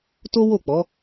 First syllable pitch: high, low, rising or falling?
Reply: high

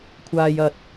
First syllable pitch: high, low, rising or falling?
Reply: low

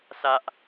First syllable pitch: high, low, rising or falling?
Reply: high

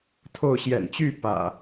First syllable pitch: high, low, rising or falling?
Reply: falling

